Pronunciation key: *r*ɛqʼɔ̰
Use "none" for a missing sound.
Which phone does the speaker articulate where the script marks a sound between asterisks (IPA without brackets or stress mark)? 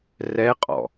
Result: r